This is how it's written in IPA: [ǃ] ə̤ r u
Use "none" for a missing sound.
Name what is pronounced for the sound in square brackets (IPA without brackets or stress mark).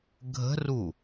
ɡʱ